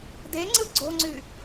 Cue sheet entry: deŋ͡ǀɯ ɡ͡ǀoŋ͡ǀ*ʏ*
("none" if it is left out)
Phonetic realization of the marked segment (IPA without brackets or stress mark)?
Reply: y